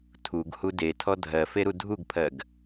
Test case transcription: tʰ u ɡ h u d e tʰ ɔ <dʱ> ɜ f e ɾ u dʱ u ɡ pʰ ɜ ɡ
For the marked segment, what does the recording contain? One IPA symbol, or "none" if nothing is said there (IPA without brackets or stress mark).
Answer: dʱ